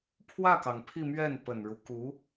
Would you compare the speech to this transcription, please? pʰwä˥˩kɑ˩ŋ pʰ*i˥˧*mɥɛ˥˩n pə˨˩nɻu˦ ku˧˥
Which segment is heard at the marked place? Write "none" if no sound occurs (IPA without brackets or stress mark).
i˥˧